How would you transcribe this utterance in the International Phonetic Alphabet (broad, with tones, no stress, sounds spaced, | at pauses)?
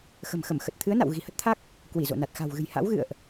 x ə̤˨˩ m x ə˧˩ m x ə˨˩ t̚ t̪ʰ ɨ˨˦ ə̯ n a̰˧˨ w ɣ i̤˨˩ h ə˦˥ t̚ t̪ʰ a˦˥ k̚ | k w i˧˩ z o̰˧˨ n a˨˩ t̚ x a̤˨˩ w ɣ ɨ̤˨˩ j h a̰˧˥ w ɣ ɨ̰˧˨ ə̯ ʔ